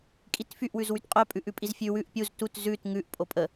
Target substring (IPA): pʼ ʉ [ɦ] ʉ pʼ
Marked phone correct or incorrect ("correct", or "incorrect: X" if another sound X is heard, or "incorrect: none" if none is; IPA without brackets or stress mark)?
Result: incorrect: ʔ